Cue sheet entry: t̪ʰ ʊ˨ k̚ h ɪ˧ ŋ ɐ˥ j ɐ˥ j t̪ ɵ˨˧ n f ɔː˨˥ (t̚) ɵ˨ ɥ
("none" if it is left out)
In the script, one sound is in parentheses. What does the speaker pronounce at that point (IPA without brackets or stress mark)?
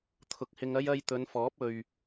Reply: p̚